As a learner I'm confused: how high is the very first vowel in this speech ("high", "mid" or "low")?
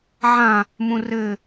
low